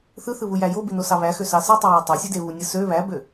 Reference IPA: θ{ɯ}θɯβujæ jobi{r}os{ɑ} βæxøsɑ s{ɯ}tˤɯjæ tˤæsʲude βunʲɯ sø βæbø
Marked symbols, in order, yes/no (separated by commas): yes, no, yes, yes